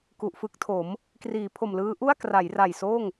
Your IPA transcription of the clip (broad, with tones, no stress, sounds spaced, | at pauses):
k u˨˩ ʔ f ɯ˦˥ k̚ tʰ o˩˦ m | k r iː˩˦ pʰ o˨˩ m l ɯː˦˥ ʔ u˥˩ a̯ k r a˩˦ j r a˨˩ j s oː˥˩ ŋ